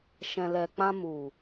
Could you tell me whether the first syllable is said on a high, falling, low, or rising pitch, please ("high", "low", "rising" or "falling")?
low